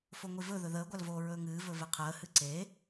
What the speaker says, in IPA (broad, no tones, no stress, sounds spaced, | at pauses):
f o ŋʷ i v ɵ ð ɵ ð əː ɡʷ a l v oː ɹ ɵː ŋ ɨː v ɵ v e qʰ əː h ɨ ǀ e